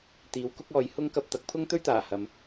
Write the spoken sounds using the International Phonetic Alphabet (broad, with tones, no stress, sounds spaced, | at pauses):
t̪ iː˨˧ w k ʊ˥ k̚ ɔː˨˧ j h ʊ˥ ŋ k ɐ˧ p̚ t̪ ɐ˨˥ k̚ pʰ ʊ˥ ŋ t̪ ɵ˥ ɥ t̪ aː˨˩ h ɐ˨ m